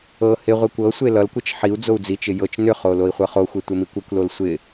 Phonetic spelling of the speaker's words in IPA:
ɤ hɪʁʷekʷ ɤsʷe lʌlkʷɤt͡ʃ ħiu̯ d͡zou̯d͡zit͡ʃɪ jɤt͡ʃ nʏχo loi̯χʷɤχoxʷe tʷɪmikʷʏkʷlol sʷɪ

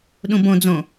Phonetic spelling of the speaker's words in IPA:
ɗũbõd͡zõ

